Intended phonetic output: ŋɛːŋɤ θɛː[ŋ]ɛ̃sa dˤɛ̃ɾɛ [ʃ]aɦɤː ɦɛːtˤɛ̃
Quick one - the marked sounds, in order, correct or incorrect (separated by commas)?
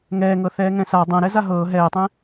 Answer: correct, incorrect